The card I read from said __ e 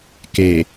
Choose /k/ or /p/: k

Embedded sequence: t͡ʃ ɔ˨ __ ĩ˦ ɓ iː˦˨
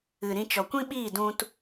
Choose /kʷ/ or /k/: kʷ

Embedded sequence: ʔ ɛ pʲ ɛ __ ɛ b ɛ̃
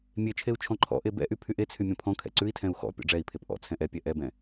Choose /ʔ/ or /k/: ʔ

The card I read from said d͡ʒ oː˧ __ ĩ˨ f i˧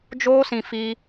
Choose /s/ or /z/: s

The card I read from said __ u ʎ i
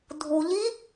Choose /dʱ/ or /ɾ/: dʱ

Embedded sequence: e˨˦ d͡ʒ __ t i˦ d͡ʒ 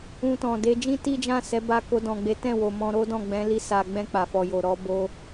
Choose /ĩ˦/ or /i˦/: ĩ˦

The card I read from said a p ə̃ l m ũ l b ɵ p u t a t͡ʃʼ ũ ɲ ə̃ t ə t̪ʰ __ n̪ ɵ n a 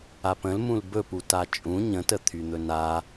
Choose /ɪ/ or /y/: y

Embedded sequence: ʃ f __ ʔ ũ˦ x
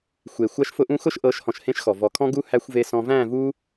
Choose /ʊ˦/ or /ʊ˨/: ʊ˦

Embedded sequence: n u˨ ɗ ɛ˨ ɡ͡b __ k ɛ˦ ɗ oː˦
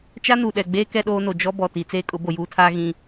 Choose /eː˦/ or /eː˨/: eː˦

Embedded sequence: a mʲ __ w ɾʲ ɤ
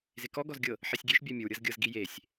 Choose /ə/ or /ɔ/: ə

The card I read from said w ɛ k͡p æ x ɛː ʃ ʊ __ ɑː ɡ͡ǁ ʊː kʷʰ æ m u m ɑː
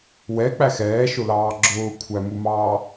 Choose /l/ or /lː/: l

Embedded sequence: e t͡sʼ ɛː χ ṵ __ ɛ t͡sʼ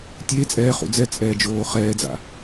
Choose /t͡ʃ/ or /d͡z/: d͡z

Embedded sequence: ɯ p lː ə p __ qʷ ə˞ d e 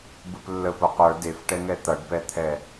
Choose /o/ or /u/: o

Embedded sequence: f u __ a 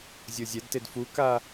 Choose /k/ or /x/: k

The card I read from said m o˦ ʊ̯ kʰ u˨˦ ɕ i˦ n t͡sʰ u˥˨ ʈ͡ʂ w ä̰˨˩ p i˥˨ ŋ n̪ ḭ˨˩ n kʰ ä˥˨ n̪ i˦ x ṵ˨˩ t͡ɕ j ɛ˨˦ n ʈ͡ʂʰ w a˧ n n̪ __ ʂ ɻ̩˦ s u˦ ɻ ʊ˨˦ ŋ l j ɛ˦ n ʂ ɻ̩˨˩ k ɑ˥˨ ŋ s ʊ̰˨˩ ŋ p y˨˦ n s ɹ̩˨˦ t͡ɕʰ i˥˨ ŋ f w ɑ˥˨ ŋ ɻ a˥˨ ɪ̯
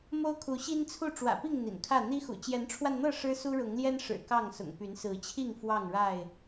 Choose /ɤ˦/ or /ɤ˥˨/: ɤ˥˨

